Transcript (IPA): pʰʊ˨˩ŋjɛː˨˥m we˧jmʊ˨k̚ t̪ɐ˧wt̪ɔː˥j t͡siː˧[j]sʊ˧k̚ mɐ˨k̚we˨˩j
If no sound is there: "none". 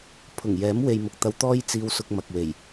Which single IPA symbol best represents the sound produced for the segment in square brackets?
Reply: w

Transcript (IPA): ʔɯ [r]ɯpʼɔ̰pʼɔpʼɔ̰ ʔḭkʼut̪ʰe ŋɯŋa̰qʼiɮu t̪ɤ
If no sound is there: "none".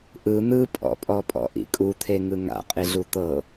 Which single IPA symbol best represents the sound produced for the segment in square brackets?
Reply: n̪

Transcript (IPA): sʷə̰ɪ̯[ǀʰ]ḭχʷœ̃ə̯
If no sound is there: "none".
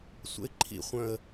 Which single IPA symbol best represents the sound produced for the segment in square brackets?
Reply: ǃʰ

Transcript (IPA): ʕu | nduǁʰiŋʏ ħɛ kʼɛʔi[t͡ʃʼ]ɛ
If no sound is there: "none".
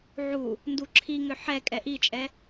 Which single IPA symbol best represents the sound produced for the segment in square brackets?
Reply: t͡ʃʼ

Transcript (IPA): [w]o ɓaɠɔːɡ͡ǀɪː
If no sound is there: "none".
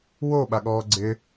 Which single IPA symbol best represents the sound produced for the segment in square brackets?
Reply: w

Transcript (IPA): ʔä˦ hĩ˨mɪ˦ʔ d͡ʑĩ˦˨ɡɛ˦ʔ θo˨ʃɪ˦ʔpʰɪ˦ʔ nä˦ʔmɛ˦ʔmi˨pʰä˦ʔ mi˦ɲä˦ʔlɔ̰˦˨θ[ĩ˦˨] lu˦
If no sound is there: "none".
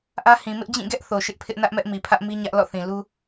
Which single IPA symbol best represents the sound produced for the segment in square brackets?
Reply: ĩ˨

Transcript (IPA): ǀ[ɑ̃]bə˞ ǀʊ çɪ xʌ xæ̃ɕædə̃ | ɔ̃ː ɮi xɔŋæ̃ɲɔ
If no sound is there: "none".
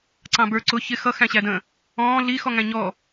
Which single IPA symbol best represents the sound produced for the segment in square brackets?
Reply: ɑ̃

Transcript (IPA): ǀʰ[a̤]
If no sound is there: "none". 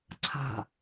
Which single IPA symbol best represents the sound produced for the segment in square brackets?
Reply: a̤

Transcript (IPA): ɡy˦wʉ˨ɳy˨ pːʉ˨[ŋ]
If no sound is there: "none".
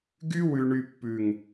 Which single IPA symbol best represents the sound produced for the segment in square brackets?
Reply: ŋ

